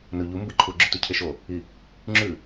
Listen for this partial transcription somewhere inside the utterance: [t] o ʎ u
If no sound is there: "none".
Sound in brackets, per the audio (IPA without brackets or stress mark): n